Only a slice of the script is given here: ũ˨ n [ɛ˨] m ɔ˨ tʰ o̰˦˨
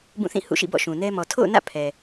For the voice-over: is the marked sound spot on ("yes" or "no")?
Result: no